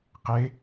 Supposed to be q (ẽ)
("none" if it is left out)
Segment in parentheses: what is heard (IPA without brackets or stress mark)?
e